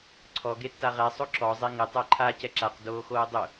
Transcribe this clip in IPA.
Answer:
ǀʰ ɔ ɡ e tː a ʁ ɛ sˤ o ǁ ɔ zˤ e ŋ ɪ tˤ ɛ ǃʰ a c ɛ ǁ a q d oː x oː dˤ ʊ

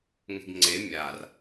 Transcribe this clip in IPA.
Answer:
ŋ e̤ ɡ ŋ͡ǀ e mʲ a r

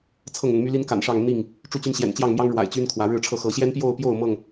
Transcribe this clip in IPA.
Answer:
t͡sʰ ɤ˥˨ ŋ ʊ˨˦ ŋ m y˦ l i˦ n k a̰˨˩ n ʂ ɑ˥˨ ŋ n̪ i˥˨ ŋ | ʈ͡ʂ u˦ t͡ɕ y˦ n ɕ j ɛ̰˨˩ n t͡ɕ j ɑ˥˨ ŋ m j ɑ˦ ŋ ɻ w a̰˨˩ ɪ̯ t͡ɕ y˦ n kʰ w ä˨˦ ɻ ɻ̩˥˨ ʈ͡ʂʰ ɤ˥˨ x ɤ˨˦ ɕ j ɛ˦ n p j o˥˨ ʊ̯ p j o˥˨ ʊ̯ m ɤ˥˨ ŋ

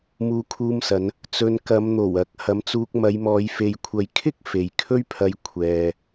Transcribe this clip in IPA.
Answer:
m uː˧ kʰ uː˧ m s ɐ˨˧ n | t͡s ɵ˧ n k ɐ˨˧ m n̪ o˨˩ w ɐ˨˥ k̚ h ɐ˨˥ m t͡s uː˧ k̚ m ɐ˨˧ j m ɔː˨˧ j f e˨ j kʷʰ ɐ˨˧ j kʰ ɪ˥ k̚ f e˨ j kʰ ɵ˥ ɥ pʰ ɐ˧ j kʷʰ ɛː˨

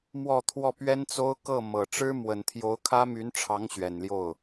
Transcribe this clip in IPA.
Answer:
m w ɔ˥˧ t̪ʰ w ɔ˥˩ p ɥ ɛ˥ n t͡s o˥ ʊ̯ k ɤ˥˩ m ɤ˨˩ ʈ͡ʂ ɻ̩˥ m w ə˨˩ n t̪ʰ j o˧˥ ʊ̯ kʰ ä˥ m y˧˥ n ʈ͡ʂʰ ɑ˧˥ ŋ ɕ ɥ ɛ˨˩ n l j o˥˩ ʊ̯

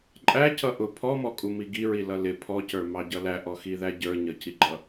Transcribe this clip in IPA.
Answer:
ǃʼ æ c ʌ ʔ ʊ pʰ ɔ m ɔ kʼ u m i ɡ i ɹ i l ʌ l ɪ pʰ ɔ c ə˞ m ɑ ɟ ʌ l æ ʔ ɔ x i ð æ ɟ ə˞ ɲ ʌ c i ɡ͡ǃ ʌ

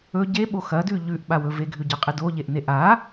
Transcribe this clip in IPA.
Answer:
ɵ ɟ e ɓ o x ɐ d ʉ ʎ ʉ ʔ ɓ a w ɵ v e ɡʱ ʉ ɟ ɐ qʼ e d o ʎ e ʔ n e ʔ a

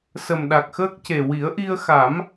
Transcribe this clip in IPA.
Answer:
s ə˨˩ m ɗ a˨˩ k̚ x əː˦˥ k̚ c e˨˩ w i˨˩˦ ə̯ ʔ i˧ ə̯ x a˨˩˦ m

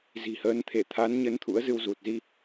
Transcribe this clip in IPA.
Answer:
z i̤˨˩ h əː˨˦ n t̪ʰ e˧˩ t̪ʰ a˨˦ n ɲ ə˨˦ n t̪ʰ ṵ˧˥ ə̯ z ɨ˧ w z u˨˩ t̚ z i˧

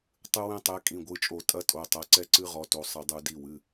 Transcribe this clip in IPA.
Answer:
tˤ ɨ˦ w ɛ̃˦ tˤ ɛ˨˦ kʼ ĩ˩˧˩ ɡʷ ɨ˩˧˩ t͡ʃʼ o˧˩˧ tʼ ɐ˦ tʼ o˩˧˩ tˤ ɐ˨˦ ǀ ɛ˦ ǀ ɨ˦ ʁ ɔ˨˦ t o˩˧˩ sˤ ɘ˧˩˧ dˤ u˧˩˧ d i˩˧˩ w ɨ˩˧˩

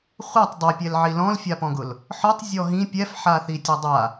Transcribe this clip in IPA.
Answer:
χʷ a tˤ dˤ ɛ pʲ ɛ l ʕ i l ɔ̃ l fʲ a p ɔ̃ ɡ ʊ l | ħ ɔ tˤ zʲ ɔ ɦ ĩ pʲ ɛ f ħ a θ i tʲ a dˤ a

